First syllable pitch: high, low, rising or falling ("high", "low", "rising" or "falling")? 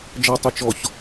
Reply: low